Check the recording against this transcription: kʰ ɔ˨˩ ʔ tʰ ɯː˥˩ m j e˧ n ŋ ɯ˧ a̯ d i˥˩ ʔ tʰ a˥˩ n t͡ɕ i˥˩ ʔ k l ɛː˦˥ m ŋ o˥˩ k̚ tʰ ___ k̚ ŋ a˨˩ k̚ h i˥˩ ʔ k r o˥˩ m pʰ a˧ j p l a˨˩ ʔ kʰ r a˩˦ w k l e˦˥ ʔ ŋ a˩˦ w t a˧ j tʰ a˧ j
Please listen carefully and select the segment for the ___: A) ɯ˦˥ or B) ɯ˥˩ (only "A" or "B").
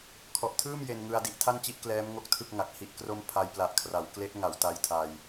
B